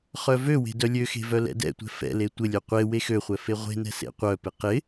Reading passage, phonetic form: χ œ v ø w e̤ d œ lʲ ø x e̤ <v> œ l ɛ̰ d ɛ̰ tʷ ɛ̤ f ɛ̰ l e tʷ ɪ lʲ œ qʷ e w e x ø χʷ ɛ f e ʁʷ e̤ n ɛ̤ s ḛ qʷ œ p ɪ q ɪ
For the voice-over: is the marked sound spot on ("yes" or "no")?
yes